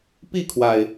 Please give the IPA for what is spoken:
p i˥˨ kʰ w a˩ ɪ̯

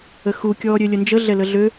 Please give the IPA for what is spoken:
ə x u kʲ ɔː ɾʲ ø lʲ ə n d͡ʒ ə ɮ ɛ l ə ɮ ø

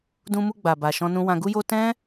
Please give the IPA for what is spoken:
d ũ˧ m u˧ ɡ͡b a˨ b a˨ ʃ ɔ̃˧ n ũ˧ w ã˧ ɡ u˦ j o˦ t ɛ̃˦

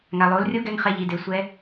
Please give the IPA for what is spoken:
ŋ a˩ lˠ o˩˧ l rʲ o˧˥ ɡ ɛ˧ ŋ χ ɛ˧ ʎ i˩˧ d e˩˧ sʷ ɛ˧˥

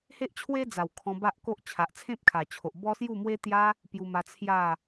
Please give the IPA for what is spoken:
h e˦ ʔ t͡ɕʰ w e˦ d͡z a˨˩ w kʰ ɔ̃˧ b a˦ ʔ k o˦ ʔ t͡ɕʰ a˨ ʔ t͡sʰ ẽ˦ p̚ kʰ a˨˩ t͡ɕʰ o˨ ʔ b ɔ˦ s j u˥˧ m w e˦ t̪ j a˦ | p j u˧ m a˧ t͡sʰ j a˥˧

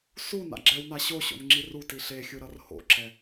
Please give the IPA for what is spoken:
s u n a̰ ɡ͡ǁ ɛ w n a ɕ o ɕ o̰ n ŋ͡ǁ i r u t i ɬ e xʲ ɯ ɾ ʌ r h o̰ ǁ ɛ

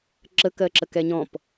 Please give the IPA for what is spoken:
ǁ ə k ɜ ǁ ə k ɛ ɲ ɔ̃ p

